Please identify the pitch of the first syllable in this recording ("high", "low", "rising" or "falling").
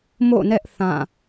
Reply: falling